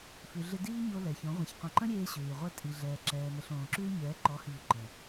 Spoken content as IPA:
f ʉ˨ ɮ ɪ˧ d iː˦ ɲ o˧ l ɛ˨ ç õ˨˦ ʁʷ ə̃˨˦ ç qʷ ə̃˧ ǃ ə̃˦ ɾʲ eː˧ ɕ ʉː˨ y̯ ʁʷ ɛ˦ tʼ i˧ ɮ ɛː˨ ǁ ɛː˨ m ə˨ ɬ õː˨ ǁ ʉː˦ ɲ ɛː˨˦ ǃ ɔ˨˦ h i˨ u̯ ǃ ə̃˨

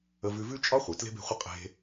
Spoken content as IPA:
ə˧ v ʉ˧ v ʉ˦ t͡ʃʼ ɒ˦ χʷ e˨ t l e̤˦ b e̤˦˨ χʷ ə˦ qʼ e̤˦

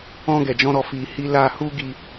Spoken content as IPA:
ɔ̃˧ ɡ ɛ˨ d͡ʒ ɔ̃˧ ɾ ɔ˨ f i˨ h i˧ l a˧ h u˦ ɡ i˧

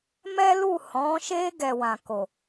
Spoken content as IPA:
m ɛ˦ l u˦˨ h ɔ̃˨˦ ʃ e˦ ɡ ɛ˧ w ã˨ k o˨

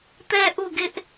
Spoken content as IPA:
t̪ ɛ˦ ʔ u˦˨ ɡ ɪ˦ ʔ

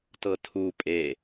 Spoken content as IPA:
t ɤ tʰ u pʼ e

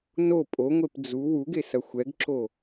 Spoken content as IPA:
n o pʼ o ŋʷ e p d͡z u w u ɡ e s ɐ xʷ ɛ ɡ ǁ o

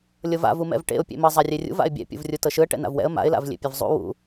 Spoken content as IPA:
lʲ ɤ v a̰ v u m ɛ̰ v ʈ ḛ ʊ̯ pʲ ḛ m ɤ zˤ a rʲ e rʲ ṵ v a̰ ɪ̯ bʲ ɛ̰ pʲ ṵ v rʲ u t ɤ ʃ ɯ ə̯ ʈ ɛ̰ n a̰ v w ɛ̰ ə̯ m a̰ ɪ̯ l a̰ v lʲ ḛ pʲ ɛ v zˤ ṵ w ṵ

